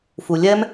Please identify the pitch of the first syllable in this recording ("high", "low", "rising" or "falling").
low